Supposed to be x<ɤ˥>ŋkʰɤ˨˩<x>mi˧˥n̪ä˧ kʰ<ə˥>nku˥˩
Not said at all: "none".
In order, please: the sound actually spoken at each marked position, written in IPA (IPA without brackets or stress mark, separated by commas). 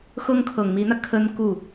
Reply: ɤ˥, ŋ, ə˥